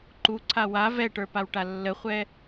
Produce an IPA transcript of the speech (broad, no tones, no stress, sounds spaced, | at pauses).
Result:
ǃ u ǀʰ a w a v ɛ ʈ ə˞ p a w ʈ a lː ə χʷ ɛ